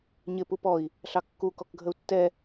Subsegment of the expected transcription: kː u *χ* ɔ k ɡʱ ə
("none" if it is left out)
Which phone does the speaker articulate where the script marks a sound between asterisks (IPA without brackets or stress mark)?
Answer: k